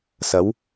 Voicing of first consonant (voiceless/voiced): voiceless